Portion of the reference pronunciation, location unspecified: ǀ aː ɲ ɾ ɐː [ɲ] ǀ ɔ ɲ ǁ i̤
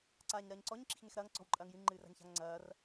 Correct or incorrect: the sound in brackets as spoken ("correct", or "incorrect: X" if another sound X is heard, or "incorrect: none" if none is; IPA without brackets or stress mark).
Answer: correct